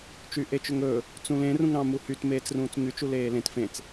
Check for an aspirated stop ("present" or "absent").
absent